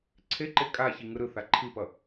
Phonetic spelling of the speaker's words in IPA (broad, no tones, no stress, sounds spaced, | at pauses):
ǀʰ e ǃ e kʼ a ç i ŋ ɯ ɾ ɯ θ a ǃʰ i p ʌ